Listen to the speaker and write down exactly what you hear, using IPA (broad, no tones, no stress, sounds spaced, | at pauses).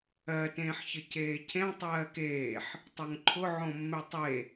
ɜ t ẽː ħ ç ə c eː cʰ ẽ tˤ ɜː k eː ħ | tˤ o ŋ ǃʰ ʊ ʕ õ mː e tˤ e